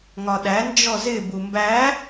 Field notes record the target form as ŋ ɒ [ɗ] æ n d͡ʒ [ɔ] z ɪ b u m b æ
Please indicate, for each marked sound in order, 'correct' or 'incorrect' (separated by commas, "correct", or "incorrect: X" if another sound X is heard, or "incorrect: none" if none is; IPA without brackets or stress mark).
correct, correct